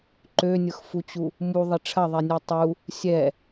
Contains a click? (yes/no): yes